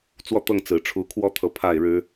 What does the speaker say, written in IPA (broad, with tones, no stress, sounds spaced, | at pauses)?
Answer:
t͡s w ɔ˥˨ t̪ ɤ˥˨ ŋ t͡s ɹ̩˨˩ ʈ͡ʂʰ u˨˦ kʰ w ɔ˦ t̪ʰ ɤ˨ pʰ a˥˨ ɪ̯ ɻ ɻ̩˦